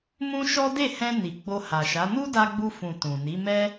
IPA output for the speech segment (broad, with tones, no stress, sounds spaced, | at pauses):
m ũ˦ ʃ ɔ˦ d e˦˨ h ɛ̃˧ n i˨ ɡ͡b o˧ h a˨ ʃ a˨˦ n u˦ d a˧ ɡ͡b u˧ f ũ˨ t ũ˨ n i˨˦ m ɛ˦